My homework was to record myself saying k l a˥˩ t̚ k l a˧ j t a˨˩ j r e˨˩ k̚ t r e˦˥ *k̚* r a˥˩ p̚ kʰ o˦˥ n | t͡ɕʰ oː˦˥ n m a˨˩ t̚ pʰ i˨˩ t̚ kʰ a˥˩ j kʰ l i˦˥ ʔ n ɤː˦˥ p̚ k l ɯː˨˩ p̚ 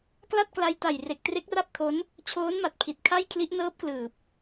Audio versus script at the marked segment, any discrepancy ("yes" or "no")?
no